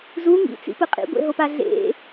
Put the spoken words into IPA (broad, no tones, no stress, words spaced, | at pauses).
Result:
zu ŋḭt͡sḭpɯ qʼḭɡʷḛɦopa ɮḛ